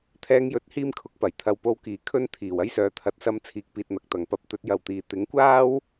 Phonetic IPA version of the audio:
t̪ʰ ɛː˧ ŋ j ɵ˨˥ t̚ h iː˥ m kʰ ʊ˨ k̚ p ɐ˨˩ j t̪ʰ ɐ˨˧ w p o˧ w k iː˨˩ kʰ ɵ˥ n t̪ʰ iː˨˩ w ɐ˥ j s œː˨˥ t̪ʰ ɐ˨˥ t̚ s ɐ˧ m t͡sʰ iː˨˥ k̚ p iː˨ t̚ n̪ ɐ˨ k̚ t̪ ɐ˨˩ ŋ p ɐ˧ p̚ t̪ ɵ˨˥ t̚ j ɐ˨ w t̪ iː˨ t̪ ɪ˨˥ ŋ kʷ aː˥ w

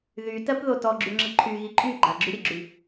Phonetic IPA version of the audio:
ð y t ɜ p ð o t ɔ ɡ͡ǁ y ŋ͡ǁ ə ǃʰ y ɣ i ǃʼ y ɡ͡ǃ a ɡ͡ǁ y ɾʲ ə ɡ͡ǁ y

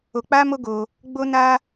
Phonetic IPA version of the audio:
o˧ k͡p a˦ m o˦ ɡ o˧ | ɡ͡b o˦ n a˦

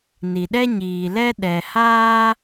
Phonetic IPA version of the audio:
n i˨ ɗ ɛ˦ ɲ iː˨ l ɛ˦ ɗ ɛ˨ h aː˦

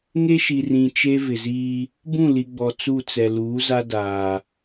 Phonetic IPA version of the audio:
ŋ e˦ ʃ i˨ r ĩ˨ t͡ʃ e˦ v ɪ˨ z iː˦ | b ũ˦˨ l i˨ ɡ͡b ɔ˨ t͡s u˦˨ t͡s ɛ˨ l uː˨˦ z a˦ d aː˨

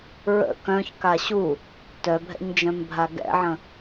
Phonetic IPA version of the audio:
ɹ ə̰ k œ̃ ç k a ɕ u | t œ bʱ ɛ̰ ɲ d͡ʒ œ̃ m bʱ a ɡ ɛ̰ ʕ ə̃

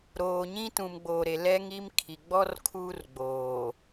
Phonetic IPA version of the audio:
ɾ oː˨ ɲ ĩ˦ t ũ˨ m ɡ͡b oː˨ ɾ e˨ l ɛ˦ ŋ i˦ m kʰ i˨ ɡ͡b ɔ˦ r kʰ uː˦ r ɡ͡b oː˨

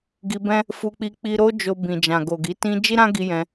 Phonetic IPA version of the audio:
ɡ i˧ b ɛ̃˦ | f u˧ k͡p i˧ k͡p i˧ ɾ o˦ d͡ʒ o˧ b ĩ˨ d͡ʒ ã˨ ɡ o˨ ɡ i˨˦ t ĩ˦ d͡ʒ i˦ ɾ ã˦ ɡ i˧ j ɛ̃˧

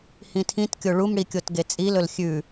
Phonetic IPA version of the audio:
h ĩ tʰ ĩ t kʲ o ɭ u m ɽ i kʲ o t ɡ e t͡sʼ i l ɵ l xʲ ʉ

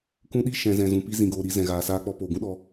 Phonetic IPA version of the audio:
k ũ˧ ɗ i˧ ʃ ɛ̃˨ z ɛ̃˨ z ũ˨ p i˧ z ĩ˨ ɡ oː˨ ɾ i˨˦ z ɛ̃˨ ɣ aː˨ s aː˧ k͡p ɔ˧ p oː˨ ɡ ũ˦ ɗ ɔ˧

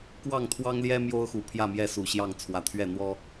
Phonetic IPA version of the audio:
k w ɑ˥˨ ŋ t̪ʰ w ɑ˦ ŋ l j ɛ˦ m j o˦ ʊ̯ x u˨˩ pʰ j ä˥˨ m j ɛ˥˨ s u˨˩ ɕ j ɑ˥˨ ŋ t͡sʰ w ä˨˦ t̪ʰ ɥ ɛ˥˨ n̪ w ɔ˦

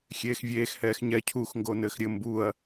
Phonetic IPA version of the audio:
xʲ eː x vʲ eː x h ɛː x ɲ ɛ cʰ u x ŋ ɡ o n ɘː x ɾʲ ɘ m b u ɐ̯

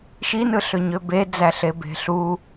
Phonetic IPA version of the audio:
ʃ i n ɯ ɬ ø ɲ ø b e d͡z æ ɬ e b e̤ ɬ u

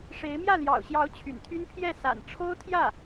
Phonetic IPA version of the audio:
ʂ e˧˥ ɪ̯ m j ä˥˩ l j ɑ̰˨˩ ʊ̯ ɕ j ɑ˧˥ ʊ̯ t͡ɕʰ y̰˨˩ n t̪ʰ y˥ n pʰ j ɛ˥˩ s a̰˨˩ n ʈ͡ʂʰ o˥ ʊ̯ t̪ʰ j ä˥˩

